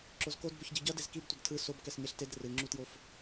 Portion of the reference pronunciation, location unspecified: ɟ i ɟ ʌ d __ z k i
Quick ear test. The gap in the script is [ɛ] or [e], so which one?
e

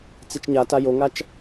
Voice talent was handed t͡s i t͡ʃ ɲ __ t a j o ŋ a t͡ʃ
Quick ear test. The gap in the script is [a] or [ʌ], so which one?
a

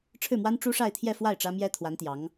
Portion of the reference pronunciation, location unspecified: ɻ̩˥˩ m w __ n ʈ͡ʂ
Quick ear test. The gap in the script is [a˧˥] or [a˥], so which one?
a˥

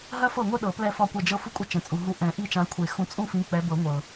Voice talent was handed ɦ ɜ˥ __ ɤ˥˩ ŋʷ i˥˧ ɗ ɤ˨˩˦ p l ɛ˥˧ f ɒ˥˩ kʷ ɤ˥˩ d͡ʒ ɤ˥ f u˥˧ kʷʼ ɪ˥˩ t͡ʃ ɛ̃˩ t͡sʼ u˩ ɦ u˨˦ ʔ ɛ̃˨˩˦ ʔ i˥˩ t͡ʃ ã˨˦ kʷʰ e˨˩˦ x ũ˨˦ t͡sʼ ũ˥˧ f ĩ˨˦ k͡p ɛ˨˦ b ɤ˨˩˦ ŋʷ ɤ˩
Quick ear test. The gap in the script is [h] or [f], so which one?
f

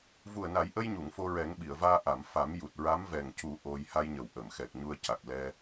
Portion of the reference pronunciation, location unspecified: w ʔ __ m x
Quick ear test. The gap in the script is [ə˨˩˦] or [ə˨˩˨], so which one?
ə˨˩˨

